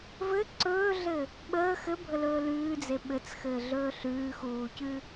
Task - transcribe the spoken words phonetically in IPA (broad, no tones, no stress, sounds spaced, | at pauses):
v ɘ ǀ ɵː ɮ ɘ | ɓ əː x ɘ bʱ ə l ɵː l ʉː d͡z e ɓ ɘ t͡s x ɘː ɮ ɵː ɬ ʉː x uː c ʉ